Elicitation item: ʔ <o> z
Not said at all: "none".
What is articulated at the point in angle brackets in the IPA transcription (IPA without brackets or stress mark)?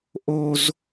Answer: o